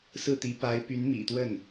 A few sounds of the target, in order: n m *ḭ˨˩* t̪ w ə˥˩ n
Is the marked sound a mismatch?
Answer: no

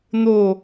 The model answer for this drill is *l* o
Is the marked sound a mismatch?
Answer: yes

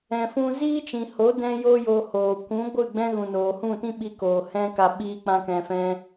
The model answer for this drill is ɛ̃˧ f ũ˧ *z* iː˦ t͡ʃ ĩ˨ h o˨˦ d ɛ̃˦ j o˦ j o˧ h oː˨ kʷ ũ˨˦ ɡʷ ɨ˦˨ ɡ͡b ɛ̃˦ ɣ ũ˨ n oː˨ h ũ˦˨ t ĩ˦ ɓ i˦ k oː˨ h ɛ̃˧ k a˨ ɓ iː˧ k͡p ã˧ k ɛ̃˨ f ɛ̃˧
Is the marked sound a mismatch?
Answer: no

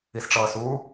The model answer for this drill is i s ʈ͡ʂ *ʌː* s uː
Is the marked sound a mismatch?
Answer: no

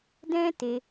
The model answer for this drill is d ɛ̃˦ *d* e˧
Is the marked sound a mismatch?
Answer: yes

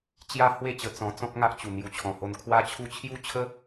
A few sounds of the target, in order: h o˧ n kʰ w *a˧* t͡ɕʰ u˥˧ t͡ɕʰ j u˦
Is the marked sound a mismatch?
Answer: yes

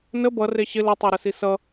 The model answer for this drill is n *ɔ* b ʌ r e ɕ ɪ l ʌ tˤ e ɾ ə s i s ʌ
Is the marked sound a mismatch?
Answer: yes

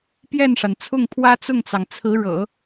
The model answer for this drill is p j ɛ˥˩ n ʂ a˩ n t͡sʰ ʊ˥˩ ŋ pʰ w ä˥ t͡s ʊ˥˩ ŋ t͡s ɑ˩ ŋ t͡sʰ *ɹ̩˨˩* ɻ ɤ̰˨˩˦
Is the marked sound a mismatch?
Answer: yes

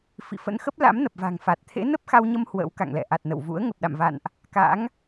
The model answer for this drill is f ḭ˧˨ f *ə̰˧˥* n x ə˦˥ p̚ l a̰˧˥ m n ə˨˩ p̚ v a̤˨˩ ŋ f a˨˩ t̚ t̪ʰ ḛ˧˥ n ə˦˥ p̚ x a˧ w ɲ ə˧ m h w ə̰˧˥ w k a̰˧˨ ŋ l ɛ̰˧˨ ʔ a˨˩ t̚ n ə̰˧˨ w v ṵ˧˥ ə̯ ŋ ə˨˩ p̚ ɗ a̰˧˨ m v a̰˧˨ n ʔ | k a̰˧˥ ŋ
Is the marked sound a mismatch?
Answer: no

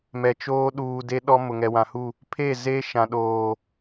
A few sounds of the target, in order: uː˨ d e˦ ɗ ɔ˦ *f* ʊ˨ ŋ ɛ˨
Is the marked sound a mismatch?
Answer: yes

